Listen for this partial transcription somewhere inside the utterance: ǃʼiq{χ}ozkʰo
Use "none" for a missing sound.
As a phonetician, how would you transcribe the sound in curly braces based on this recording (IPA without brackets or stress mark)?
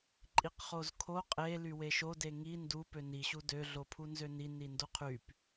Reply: χ